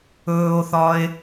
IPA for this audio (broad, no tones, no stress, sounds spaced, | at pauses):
ɵː o̯ θ ɒ e̯